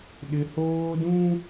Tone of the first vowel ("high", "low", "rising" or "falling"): high